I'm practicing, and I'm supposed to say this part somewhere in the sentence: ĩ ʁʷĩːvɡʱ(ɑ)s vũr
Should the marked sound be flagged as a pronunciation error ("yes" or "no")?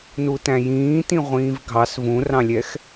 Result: no